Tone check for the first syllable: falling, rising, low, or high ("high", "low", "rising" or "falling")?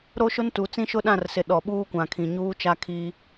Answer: high